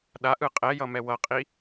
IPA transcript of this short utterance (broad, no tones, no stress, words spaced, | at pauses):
ɗaʔɯ qʼɛjʌmɛ wʌqʼi